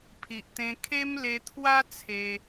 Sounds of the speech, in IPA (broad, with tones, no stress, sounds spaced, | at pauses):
pʰ i˨ ʔ t̪ ẽ˦ kʰ e˦ m l e˧ t̪ʰ w a˦ t͡sʰ e˧